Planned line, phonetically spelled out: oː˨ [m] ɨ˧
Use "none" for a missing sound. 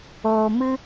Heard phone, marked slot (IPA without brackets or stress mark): m